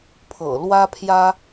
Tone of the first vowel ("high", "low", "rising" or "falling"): low